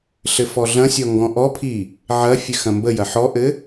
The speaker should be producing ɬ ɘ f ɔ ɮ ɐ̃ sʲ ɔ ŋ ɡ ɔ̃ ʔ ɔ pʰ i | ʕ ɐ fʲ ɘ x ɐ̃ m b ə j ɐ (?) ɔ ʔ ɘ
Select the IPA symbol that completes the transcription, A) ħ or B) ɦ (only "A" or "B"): A